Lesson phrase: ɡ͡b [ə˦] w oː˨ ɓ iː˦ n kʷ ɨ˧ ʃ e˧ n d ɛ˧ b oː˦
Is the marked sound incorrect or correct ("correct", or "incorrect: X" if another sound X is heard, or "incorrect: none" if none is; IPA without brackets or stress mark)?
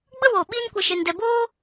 correct